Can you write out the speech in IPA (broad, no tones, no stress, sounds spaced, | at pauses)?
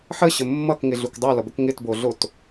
ħ ə ɕ ə mː ʌ k ŋ ɪ ɮ u k dˤ u l ʌ b ə k ŋ ɪ t b o ɮ o t